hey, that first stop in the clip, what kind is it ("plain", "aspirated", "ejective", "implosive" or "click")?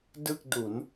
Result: plain